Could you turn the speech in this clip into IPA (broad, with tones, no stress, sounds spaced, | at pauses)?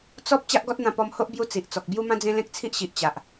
t͡s ɔ˦ p̚ t͡ɕ a˦ ʔ ɡ ɔ˦ t̚ n̪ ã˧ p ɔ˧ m h o˦ ʔ b j u˧ t͡s i˨ ʔ t͡s ɔ˨ k̚ b j u˧ m ã˧ d͡z ẽ˧ l ẽ˦ k̚ t͡sʰ i˦ ʔ ɕ i˨ ʔ t͡ɕ a˨ ʔ